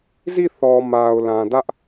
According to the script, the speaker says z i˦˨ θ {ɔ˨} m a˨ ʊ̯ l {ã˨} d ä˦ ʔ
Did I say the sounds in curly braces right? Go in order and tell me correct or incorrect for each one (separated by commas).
correct, correct